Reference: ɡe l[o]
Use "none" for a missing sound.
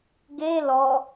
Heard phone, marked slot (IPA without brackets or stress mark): ɔ